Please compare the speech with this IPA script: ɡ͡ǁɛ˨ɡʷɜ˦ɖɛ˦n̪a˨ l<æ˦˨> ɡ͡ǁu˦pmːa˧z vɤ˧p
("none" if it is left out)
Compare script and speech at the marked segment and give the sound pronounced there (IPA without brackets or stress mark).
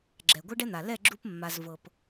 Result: ɛ˦˨